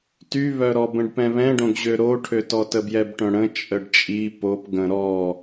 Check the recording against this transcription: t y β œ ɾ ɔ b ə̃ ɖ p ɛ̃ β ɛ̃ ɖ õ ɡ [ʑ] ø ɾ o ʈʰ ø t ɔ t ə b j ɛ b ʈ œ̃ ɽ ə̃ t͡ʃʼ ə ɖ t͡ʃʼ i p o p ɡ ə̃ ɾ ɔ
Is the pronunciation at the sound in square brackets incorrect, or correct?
correct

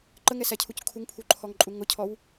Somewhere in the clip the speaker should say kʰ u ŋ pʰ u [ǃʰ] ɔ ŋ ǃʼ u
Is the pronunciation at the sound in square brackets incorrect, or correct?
correct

